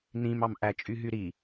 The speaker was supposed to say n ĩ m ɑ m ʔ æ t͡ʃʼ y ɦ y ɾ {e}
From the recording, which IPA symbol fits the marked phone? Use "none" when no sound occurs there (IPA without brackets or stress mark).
i